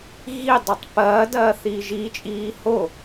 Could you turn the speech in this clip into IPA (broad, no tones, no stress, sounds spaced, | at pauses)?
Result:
ɣ i dˤ o tˤ p ɐː d ɐː θ iː ʒ i t͡ʃʼ iː h o